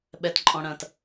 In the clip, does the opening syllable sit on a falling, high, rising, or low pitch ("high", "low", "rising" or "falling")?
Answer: low